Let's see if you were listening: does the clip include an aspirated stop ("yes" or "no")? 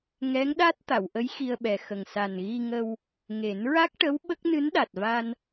no